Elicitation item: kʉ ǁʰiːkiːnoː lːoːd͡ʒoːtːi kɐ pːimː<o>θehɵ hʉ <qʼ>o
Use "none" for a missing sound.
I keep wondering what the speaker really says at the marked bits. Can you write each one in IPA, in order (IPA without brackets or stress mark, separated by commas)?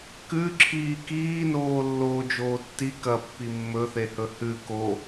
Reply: ɵ, k